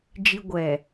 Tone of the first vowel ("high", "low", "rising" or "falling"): low